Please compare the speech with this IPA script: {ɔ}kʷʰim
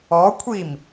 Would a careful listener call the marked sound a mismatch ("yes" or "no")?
no